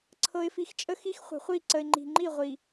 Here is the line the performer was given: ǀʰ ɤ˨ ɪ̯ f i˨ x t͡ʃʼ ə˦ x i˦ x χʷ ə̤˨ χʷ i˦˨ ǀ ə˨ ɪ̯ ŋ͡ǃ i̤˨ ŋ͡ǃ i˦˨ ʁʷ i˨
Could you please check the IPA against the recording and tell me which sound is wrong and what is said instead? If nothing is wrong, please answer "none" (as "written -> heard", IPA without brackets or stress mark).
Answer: none